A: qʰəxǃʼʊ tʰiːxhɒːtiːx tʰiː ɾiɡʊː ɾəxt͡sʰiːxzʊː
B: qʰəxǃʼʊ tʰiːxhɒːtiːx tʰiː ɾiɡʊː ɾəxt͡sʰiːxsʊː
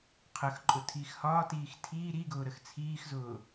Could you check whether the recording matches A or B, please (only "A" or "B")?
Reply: A